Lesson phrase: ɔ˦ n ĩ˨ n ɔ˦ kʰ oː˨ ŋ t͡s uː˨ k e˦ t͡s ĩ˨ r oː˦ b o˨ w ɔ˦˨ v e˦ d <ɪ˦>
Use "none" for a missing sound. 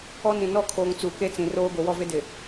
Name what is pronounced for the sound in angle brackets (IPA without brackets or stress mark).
ɪ˨